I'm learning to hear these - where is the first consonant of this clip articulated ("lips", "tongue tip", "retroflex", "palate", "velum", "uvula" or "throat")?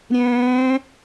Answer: tongue tip